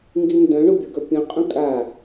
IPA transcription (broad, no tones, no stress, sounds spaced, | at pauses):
ŋ ɡ i n d œ̃ ɳ o bʲ ɵ ɡ œ pʲ œ̃ qʼ œ̃ kʼ a